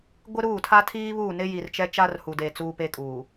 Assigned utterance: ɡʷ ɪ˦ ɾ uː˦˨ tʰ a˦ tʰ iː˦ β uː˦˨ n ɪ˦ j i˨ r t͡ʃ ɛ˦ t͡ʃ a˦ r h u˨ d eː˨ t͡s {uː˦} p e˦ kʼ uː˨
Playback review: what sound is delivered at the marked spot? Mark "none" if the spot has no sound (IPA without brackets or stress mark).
uː˦